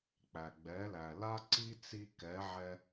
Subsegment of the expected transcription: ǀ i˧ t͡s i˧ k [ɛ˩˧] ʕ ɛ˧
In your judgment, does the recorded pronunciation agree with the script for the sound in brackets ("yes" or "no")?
yes